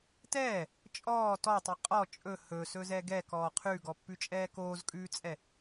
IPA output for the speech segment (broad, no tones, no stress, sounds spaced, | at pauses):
t ɛː | t͡ʃʼ ɔː t ɔ tˤ i qʼ ɔ t͡ʃʼ ɵ h ɵ s ɵ z ɛ ɡ ɛ k ɔː qʰ ʉ ɡ ɔ pː ʉ t͡ʃʼ ɛː k oː z kʼ ʉː t͡sʼ ɛ